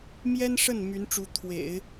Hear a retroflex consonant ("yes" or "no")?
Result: yes